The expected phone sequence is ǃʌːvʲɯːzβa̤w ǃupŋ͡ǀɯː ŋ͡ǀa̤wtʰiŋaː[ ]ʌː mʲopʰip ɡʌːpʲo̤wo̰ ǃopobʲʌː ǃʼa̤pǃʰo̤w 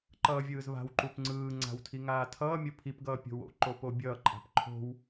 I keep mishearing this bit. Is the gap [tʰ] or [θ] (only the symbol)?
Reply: tʰ